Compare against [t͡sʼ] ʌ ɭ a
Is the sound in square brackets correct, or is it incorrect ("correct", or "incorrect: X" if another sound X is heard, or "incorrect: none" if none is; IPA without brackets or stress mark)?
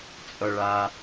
correct